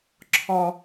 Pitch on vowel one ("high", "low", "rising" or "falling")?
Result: high